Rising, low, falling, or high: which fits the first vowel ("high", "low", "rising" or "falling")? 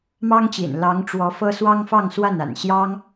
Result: high